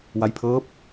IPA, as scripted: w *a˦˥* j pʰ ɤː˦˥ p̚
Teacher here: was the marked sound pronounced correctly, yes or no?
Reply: yes